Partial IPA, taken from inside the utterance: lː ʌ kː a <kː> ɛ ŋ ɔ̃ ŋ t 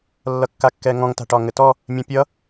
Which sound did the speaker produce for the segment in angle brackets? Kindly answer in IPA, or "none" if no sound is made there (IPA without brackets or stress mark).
kː